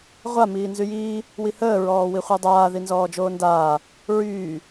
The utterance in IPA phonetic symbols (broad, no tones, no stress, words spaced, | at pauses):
ʁʷa miːnzyjiː | wihəː ɹɔːwiχʷadˤaː ðinzɔːd͡ʒoːndaː | ɹyː